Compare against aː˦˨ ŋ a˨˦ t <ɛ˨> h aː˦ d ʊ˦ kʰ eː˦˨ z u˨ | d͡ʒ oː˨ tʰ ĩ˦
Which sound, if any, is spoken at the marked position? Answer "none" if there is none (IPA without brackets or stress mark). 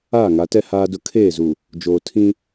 ɛ˦